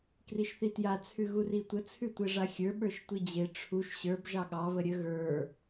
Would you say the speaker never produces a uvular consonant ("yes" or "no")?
yes